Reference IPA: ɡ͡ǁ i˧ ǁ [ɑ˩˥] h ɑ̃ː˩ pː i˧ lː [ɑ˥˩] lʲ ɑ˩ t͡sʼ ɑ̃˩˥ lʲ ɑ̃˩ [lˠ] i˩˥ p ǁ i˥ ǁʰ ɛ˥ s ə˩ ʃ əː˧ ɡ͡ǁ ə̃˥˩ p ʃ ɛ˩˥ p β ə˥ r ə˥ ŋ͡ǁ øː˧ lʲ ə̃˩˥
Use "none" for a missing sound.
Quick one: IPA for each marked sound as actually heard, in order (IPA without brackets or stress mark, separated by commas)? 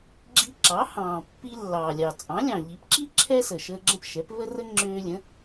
ɑ˩˥, ɑ˩, ʎ